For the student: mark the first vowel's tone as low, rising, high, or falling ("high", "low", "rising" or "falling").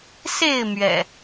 falling